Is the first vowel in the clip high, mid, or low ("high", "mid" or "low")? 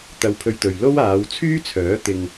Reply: low